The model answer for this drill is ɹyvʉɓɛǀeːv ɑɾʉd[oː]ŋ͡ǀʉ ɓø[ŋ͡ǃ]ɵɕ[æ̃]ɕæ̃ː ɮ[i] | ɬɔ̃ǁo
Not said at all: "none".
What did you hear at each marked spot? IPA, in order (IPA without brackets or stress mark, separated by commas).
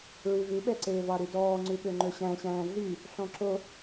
ɔː, ŋ͡ǃ, æ̃, y